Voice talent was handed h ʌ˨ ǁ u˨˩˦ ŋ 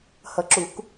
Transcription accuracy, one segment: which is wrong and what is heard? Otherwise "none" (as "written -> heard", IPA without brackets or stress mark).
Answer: ŋ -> k